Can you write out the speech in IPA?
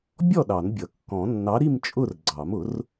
bʲ ɔ˥˨ ɗ ɑ˨˩˦ n bʲ ʌ˨˩˦ kː ɔ̃˨˩˦ nː ɑ˨˥ ɾ i˥˨ m t͡ʃʼ ʊ˥˨ r ɡ͡ǀ ɑ˨˩˦ m ʊ˨˩˦ r

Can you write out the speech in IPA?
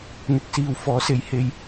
n̪ ɪ˨ k̚ s iː˨ w f ɔː˨˥ s e˨˥ j h e˧ j

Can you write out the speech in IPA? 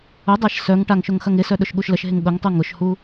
ʊ dˤ a ʃ s œ ŋ ʈ a ŋ ʃ ʊ ŋ x ɐ ŋ ɪ s œ ɗ ʊ ʃ ɠ u ʃ l ə ʃ ɦ ɪ ŋ ɠ ʊ ŋ tˤ u ŋ ʊ ʃ h u

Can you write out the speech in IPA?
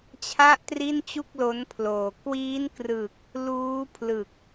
t͡ɕʰ a˥˩ ʔ t r i˥˩ n t͡ɕ u˥˩ k̚ l o˦˥ n pʰ l oː˨˩ k w iː˦˥ n k r ɯ˨˩ k̚ | l uː˦˥ pʰ l ɯ˨˩ k̚

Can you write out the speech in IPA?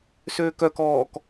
s øː k œ k ɔː k

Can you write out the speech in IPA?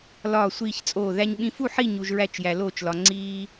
l ɒː˥˨ sʷ iː˥˨ ç t͡sʼ oː˥˨ ð æ˧ ɲ ɓ ĩ˧ f u˥˨ ħ i˥˨ ɲ u˧ ʒ ɹ æ˥˨ t͡ʃ j æ˧ l oː˥˨ t͡ʃ l ɒ˧ ŋ͡ǀ iː˧

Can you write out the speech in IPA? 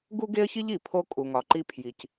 ɡ u˥ ɡ e˥ ə̯ ç i˥ ʎ i˩ pʰ o˧ kʼ u˩ ŋ ɒ˩ ǃ i˧ pʰ j i˩ c

